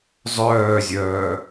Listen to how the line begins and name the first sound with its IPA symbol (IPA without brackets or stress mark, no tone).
zˤ